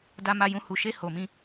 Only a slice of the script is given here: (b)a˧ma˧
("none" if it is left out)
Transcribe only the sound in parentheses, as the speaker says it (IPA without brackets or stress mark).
d